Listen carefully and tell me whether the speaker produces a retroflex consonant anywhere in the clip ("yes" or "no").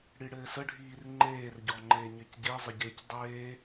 yes